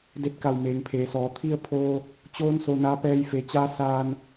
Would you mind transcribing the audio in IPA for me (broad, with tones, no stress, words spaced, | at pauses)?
de˧t̚ka˧˩wmeː˩ŋ pʰeː˩˧sɔː˩˧ t̪ʰi˧ə̯pʰoː˧ | t͡ɕoː˧˥n so˧naː˧˥ pɛː˧jfe˩˧t͡ɕaː˧˥ saː˧n